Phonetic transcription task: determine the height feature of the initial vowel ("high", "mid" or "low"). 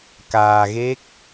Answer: low